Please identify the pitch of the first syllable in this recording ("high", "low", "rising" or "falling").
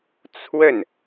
falling